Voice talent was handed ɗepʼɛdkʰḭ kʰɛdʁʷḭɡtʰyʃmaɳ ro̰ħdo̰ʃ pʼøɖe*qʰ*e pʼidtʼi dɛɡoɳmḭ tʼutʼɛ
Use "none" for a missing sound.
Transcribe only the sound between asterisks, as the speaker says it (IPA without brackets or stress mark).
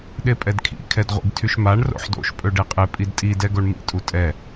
qʼ